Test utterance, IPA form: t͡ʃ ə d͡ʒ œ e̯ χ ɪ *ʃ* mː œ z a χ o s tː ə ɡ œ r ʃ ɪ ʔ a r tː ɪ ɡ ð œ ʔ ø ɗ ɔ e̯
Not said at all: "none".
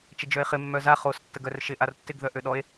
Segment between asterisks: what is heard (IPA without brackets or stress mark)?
none